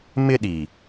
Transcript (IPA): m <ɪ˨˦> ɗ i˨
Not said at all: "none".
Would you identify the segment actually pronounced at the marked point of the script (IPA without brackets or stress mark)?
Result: ɪ˦